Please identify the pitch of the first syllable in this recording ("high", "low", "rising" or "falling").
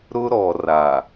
high